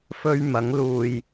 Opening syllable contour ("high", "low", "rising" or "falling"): high